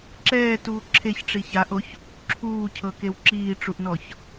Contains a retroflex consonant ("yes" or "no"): yes